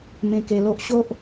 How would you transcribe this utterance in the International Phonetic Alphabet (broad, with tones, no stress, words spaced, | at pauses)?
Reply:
mẽ˧ke˧lo˦ʔ ɕo˦ʔ